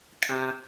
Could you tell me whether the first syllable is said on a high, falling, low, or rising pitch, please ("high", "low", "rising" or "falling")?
low